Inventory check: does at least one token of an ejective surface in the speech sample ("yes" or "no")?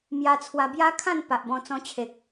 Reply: no